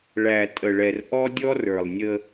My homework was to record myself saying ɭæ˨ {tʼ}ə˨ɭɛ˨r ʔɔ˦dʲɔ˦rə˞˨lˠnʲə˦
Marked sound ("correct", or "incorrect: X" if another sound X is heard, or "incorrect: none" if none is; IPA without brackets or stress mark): correct